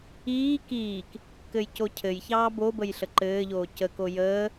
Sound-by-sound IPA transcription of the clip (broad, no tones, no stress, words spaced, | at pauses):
iː kiːk | kɘjcocʰɘjçɑː bobəj ɬəǃɘːʎoː cəko jəː